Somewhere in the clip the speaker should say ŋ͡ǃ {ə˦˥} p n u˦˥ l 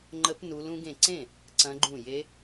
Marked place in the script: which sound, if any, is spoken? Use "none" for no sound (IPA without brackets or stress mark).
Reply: ə˦˥